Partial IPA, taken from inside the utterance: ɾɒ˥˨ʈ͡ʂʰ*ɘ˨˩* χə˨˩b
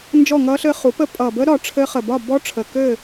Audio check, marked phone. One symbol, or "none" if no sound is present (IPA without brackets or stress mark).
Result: ɘ˦˥